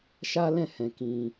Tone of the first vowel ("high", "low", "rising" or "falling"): high